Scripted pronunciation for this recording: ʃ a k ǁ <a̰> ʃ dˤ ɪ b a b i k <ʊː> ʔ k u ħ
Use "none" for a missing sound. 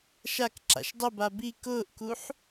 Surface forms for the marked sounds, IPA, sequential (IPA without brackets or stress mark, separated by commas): a̰, ʊː